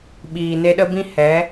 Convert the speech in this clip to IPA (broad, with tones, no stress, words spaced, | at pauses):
ɓiː˨ne˧ɗə˦bĩ˦ hɛ˨˦